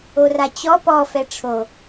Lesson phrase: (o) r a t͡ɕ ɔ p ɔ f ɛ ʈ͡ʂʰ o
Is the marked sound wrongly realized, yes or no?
no